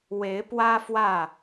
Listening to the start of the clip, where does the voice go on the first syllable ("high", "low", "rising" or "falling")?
rising